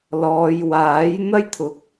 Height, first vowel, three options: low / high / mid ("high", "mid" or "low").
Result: mid